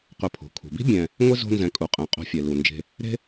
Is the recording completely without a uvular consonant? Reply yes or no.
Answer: no